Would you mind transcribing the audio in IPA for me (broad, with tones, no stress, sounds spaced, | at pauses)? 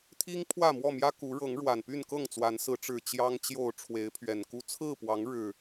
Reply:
t̪ʰ i˦ ŋ pʰ w ä˥˨ m w ɔ˥˨ m j ä˦ k u˨˦ ɻ ɤ˨˦ ŋ ɻ w a˨˩ n p y˥˨ n k ɤ˥˨ ŋ t͡s w a˨˦ n s ɹ̩˨˦ ʈ͡ʂ ɻ̩˨˩ t͡ɕ j ɑ˦ ŋ t͡ɕ j o˥˨ ʊ̯ ʈ͡ʂʰ w e˨˦ ɪ̯ pʰ ɥ ɛ˨˩ n k u˦ t͡sʰ ɹ̩˥˨ p w ɑ˨˦ ŋ ɻ ɻ̩˨˩